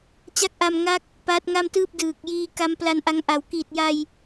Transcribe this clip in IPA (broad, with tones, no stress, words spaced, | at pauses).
t͡ɕa˦˥k̚ʔa˧m ŋa˦˥k̚ | paː˦˥t̚ŋa˥˩mtɯː˥˩p̚ dɯː˨˩k̚jiː˧ ka˦˥mpla˧nʔa˦˥ŋʔa˨˩w kiː˨˩t̚ja˧j